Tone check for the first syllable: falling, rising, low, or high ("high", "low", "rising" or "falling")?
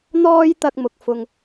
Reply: high